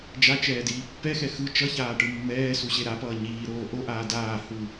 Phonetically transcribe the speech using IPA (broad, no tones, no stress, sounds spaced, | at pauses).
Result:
d͡ʒ a t͡ʃ ɛː d iː pː ɛ x ɛ x ɯ t͡ʃ ʌ ç aː ʈ ɯ mː ɛː s u ɕ e ɾ a p ʌː ɲ iː ɾ oː ʔ o ʔ aː d aː h u